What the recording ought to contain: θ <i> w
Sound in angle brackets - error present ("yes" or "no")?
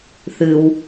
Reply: yes